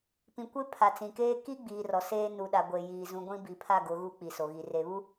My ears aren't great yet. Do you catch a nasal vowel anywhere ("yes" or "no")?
yes